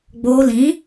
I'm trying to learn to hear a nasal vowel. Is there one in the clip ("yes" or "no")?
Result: yes